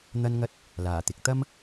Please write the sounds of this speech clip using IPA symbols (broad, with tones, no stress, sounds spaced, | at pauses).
n̪ ɐ˥ n ŋ ɐ˥ t̚ | l aː˨˩ t̪ ɪ˨˥ k̚ t̪ ɐ˥ m